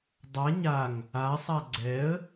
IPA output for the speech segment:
dˤ a ɲ a ŋ | a sˤ a ɡ͡ǀ ɛ ə̯

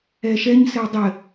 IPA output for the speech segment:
ɛ ʃ ɛ ɲ s ɘ w dˤ ɘ

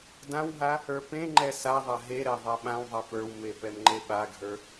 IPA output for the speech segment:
d ã w ɦ a | ə˞ p ẽ ŋ͡ǃ ɛ s a ðˤ a ɦ e ɾ ɛ ðˤ a ɓ ã w ðˤ ɛ p ə˞ w m e p ɛ m ŋ͡ǃ e ɓ a ɡʱ ə˞

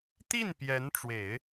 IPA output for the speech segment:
t̪ i˥˩ n p j ɛ˧˥ n ʈ͡ʂ w e˨˩˦ ɪ̯

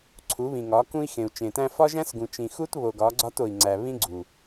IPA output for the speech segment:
ǀʰ u˨˦ β ĩ˨ ŋ ɒ˨˦ k ũ˦ i̯ x ẽ˨ u̯ t͡ʃ ẽ˨ t æ̃˦ f ɒ˦ ʒ æ̃˦ s ɡ ũ˨ t͡ʃ ĩ˨ x u˦ t β o˨ ɡ ɒ˨˦ ɡ͡ǀ ɒ˦ t o˨ i̯ ŋ͡ǀ æ˨ β ĩ˦ ɡ͡ǀ u˨

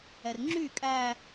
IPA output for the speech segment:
ɛ r ŋ͡ǁ y kʼ æ

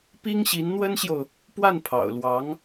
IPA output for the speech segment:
p i˥ ŋ ɕ i˧˥ n n̪ w ə˥ n ɕ j o˨ ʊ̯ | p w a˥˩ n pʰ ɑ̰˨˩ ʊ̯ l w ɑ˧˥ ŋ

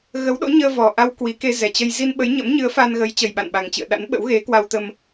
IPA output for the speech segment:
ɣ ə˨˦ w ɗ o̰˧˥ ɲ əː˧ v ɔ˨˩ ʔ a˧ w k w i˨˦ k e˧ z ɛ˨˩ t͡ɕ ə˧ j z i˧ n ɓ ə˨˦ j ɲ ə̰˧˥ m ɲ ɨ˨˦ ə̯ f a˧ n ɣ ə˨˦ j t͡ɕ ə˨˩ j ɓ a̰˧˨ n ɓ a˨˩ ŋ t͡ɕ ɨ̰˧˨ ə̯ ɗ a̰˧˥ n ɓ ə̰˧˥ w ɣ e˨˦ k w a˧ w t̪ ə˧ m

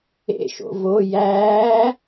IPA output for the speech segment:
ḛ ʃ o̰ v o j æː

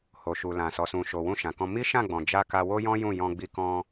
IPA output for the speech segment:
h o˨ ʃ u˨ l ã˨ s ɔ˨ s ũ˨ ʃ o˨ w ũ˧ ʃ ã˨ k ɔ̃˧ m i˦ ʃ ã˦˨ ɡ͡b ɔ̃˨ d͡ʒ a˧ k a˧ w o˦ j ɔ̃˦ j ũ˦˨ j ɔ̃˧ ɡ͡b i˧ k ɔ̃˧

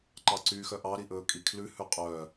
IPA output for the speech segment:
ǃ ɑ ǀ yː x œ ʔ ɑ ɾ i ʔ ɵː kʼ i kʰ l ʉ h ʉ qʼ œ

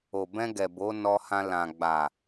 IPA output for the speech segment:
o˨ b ɛ̃˧ ɡ ɛ˨ b o˨˦ n ɔ˧ h ã˧ l ã˨ ɡ͡b a˨

